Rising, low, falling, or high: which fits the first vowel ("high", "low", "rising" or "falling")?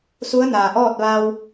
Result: rising